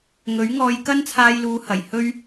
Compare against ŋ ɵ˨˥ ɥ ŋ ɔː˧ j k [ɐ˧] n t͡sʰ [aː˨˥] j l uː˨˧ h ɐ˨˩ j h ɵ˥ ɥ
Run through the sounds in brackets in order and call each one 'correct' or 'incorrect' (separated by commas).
incorrect, incorrect